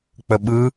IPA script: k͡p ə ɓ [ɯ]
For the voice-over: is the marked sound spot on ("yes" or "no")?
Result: yes